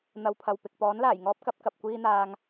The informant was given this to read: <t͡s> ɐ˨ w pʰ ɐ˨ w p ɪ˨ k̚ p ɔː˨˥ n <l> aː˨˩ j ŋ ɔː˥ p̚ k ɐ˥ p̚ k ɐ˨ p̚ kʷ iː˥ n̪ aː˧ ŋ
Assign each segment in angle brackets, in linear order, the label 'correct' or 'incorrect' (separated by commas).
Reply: incorrect, correct